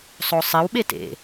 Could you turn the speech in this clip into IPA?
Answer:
sˤ o sˤ ɪ w ɓ e t ḛ

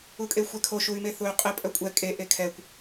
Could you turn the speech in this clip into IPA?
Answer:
u kʼ e xʷ ɛ kʰ o ʃ u y̯ m e θ u y̯ qʼ e pʼ œ kʷʼ ɛ kʼ e ʔ e kʰ ɛ kʷ

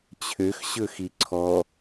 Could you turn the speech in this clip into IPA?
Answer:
t͡ɕʰ ø x ɕ ɵ x i ǀʰ ɔ

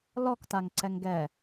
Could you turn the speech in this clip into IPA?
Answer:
l ɔ k t a ŋ ǀ ɛ ŋ ɡ ɛ

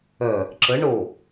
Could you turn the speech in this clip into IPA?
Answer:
œ | ǁ ə ɳ o

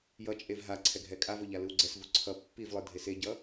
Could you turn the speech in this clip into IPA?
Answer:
j ʌ t͡ʃʼ e v ɦ a ǀʰ ɛ ɡʱ ɛ kʼ a v o ʎ a l ɯ w ɡ͡ǀ ɛ s v u ǀʰ ʌ pː i v lˠ ɯ dʱ e s e ɟ ʌ

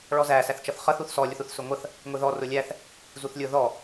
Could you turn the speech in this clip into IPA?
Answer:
ɭ ɔ z æ s æ θ t͡ʃ ʌ θ χ ʌ θ u θ s ɔ lʲ ʊ θ u θ s ʊ ŋʷ ʌ θ | ŋʷ i ð ɔ r ʊ lʲ æ θ | z u θ lʲ ʊ ð ɔ

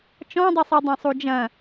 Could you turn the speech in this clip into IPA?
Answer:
t͡ʃ ɔ̃ dˤ i sˤ i dˤ ɛ̃ sˤ u d͡ʒ ɐ̃

